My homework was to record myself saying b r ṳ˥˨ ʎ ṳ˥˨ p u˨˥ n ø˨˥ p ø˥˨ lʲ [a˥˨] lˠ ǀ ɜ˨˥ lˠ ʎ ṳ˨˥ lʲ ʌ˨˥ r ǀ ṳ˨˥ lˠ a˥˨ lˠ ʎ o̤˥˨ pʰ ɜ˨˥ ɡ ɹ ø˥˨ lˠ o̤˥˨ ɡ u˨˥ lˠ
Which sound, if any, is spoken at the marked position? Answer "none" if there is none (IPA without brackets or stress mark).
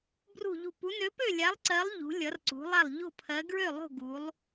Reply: a˨˥